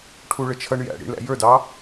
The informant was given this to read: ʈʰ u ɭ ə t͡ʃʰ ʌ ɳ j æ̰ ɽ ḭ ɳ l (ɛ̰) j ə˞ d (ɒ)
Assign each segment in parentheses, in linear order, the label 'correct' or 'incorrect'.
incorrect, incorrect

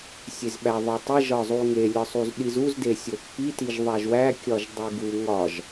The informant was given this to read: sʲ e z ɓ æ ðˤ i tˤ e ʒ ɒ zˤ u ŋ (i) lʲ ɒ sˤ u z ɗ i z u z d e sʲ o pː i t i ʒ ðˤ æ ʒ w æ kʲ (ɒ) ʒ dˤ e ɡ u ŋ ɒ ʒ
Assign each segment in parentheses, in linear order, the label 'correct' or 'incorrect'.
incorrect, correct

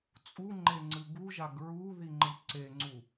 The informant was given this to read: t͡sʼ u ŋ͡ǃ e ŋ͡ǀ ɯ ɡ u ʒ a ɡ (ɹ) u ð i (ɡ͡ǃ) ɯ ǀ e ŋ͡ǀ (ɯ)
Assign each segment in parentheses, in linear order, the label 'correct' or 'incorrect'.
correct, incorrect, incorrect

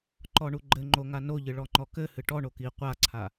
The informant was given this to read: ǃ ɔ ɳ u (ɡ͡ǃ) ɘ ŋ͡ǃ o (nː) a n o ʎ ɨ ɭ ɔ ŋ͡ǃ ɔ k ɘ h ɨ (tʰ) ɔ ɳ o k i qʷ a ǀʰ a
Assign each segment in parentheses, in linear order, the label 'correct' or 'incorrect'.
correct, incorrect, incorrect

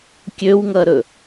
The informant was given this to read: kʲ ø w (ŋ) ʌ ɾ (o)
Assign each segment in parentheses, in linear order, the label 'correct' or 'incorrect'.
correct, incorrect

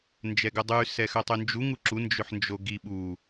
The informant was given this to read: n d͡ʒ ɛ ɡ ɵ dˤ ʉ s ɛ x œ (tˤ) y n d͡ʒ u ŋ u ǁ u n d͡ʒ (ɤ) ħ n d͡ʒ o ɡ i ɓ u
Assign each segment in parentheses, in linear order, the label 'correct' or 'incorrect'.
correct, incorrect

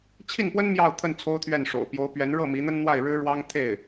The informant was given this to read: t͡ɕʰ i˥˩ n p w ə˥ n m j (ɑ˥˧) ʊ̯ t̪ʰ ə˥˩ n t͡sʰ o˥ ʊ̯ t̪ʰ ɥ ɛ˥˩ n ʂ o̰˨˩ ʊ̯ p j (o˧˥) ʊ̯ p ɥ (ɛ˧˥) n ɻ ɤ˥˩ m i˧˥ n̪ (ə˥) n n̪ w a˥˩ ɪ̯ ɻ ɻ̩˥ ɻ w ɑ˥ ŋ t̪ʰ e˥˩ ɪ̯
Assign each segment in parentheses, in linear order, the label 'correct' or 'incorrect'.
correct, correct, correct, correct

